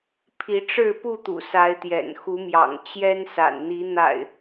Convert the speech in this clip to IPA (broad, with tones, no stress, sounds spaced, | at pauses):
pʰ i˨˦ ʈ͡ʂ ɻ̩˥˨ p u˥˨ t̪ ṵ˨˩ s a˨˦ ɪ̯ t̪ j ɛ̰˨˩ n x u˨˦ m j ɑ̰˨˩ ŋ t͡ɕ j ɛ˦ n s a̰˨˩ n n̪ i˨˦ n̪ a̰˨˩ ɪ̯